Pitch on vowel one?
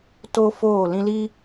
high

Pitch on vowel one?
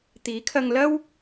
rising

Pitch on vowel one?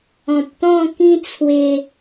low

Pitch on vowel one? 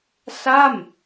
falling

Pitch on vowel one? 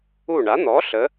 falling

